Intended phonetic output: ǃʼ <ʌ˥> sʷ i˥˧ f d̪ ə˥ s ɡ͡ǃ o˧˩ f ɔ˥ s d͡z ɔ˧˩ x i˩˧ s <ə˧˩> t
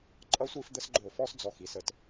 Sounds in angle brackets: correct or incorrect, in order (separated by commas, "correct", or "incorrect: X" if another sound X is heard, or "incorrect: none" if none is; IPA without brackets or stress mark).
correct, correct